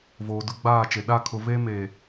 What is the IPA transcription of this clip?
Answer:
voː˨dʊ˦ɡ͡baː˦˨t͡ʃe˨ ɗa˦˨kʰʊ˨ ve˦me˨

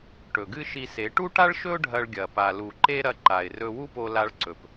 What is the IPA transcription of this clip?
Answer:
ʈɵ˨ɡɨ˦ʃi˧se˨˦ ʈu˦ʈa˦ɭʃɵ˦ʊ̯ ɖʱɐ˧ɭɡʲɐ˨ pa˨lu˨ ǃe˦ɾɐ˧ ǃa˨ɪ̯rɵ˧ wu˦po˧la˧ɭǀɵ˨p

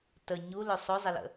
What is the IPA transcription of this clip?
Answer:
tə ɲulɵ sˤozˤɪlə̰

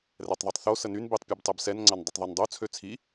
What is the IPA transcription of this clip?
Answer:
rɛtˤðˤitˤθo sənyn bitˤ pʲøbtˤɛbsɛn ŋ͡ǀandˤətˤðˤɛndˤo t͡sʰøt͡sʰi

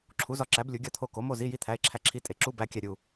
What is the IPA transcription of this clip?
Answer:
ǁʰu˨˥zɒ˨˥ǁæ˨˥b lʲu˨˥ɡʲɒ˥˨t̪ʰo˥˨ ko˨˥mo˥˨zi˧˥˧ji˥˨ t̪ʰæ˧˥˧e̯ǁʰæ˥˨ǁʰi˥˨ tʼe˨˥ǁu˧˥˧ bæ˧˥˧kʲæ˥˨ ɾʲu˥˨

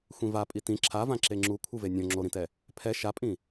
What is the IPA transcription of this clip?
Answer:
xʷĩvapʼi tĩ ǁʰavã ǁeŋ͡ǁu kʷʰɯvenʲõ ŋ͡ǁoɾĩtɛ | pʰɛ ʃapʼĩ

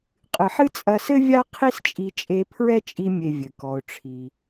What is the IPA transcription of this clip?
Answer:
qʼɨ˨ħɨ˦t͡sʼɐ˧sɘ˦ vʲa˦ qʰi˦st͡ʃʼi˧ t͡ʃʼe˧pʰɹɛ˦t͡ʃʼi˧mʲe˨ vʲɘ˨kɔ˧ʊ̯ʈ͡ʂʰi˧

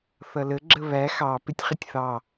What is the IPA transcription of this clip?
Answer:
θʌlə ɡ͡ǁəβæ xɑ pɪtʲχɪtʲθɑ

